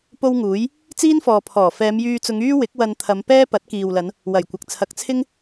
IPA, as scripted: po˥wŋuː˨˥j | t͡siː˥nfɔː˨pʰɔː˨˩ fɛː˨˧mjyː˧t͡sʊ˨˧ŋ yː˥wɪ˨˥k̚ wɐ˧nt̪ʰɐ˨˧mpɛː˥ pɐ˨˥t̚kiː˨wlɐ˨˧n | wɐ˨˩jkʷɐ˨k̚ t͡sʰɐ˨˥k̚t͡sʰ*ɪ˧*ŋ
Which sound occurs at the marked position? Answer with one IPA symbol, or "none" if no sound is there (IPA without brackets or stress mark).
ɪ˥